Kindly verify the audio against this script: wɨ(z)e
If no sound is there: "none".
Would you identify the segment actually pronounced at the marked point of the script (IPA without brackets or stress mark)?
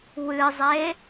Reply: zˤ